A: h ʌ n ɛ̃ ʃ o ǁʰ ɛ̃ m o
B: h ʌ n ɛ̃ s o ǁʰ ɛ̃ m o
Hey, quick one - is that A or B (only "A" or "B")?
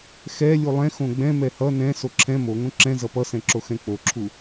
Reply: B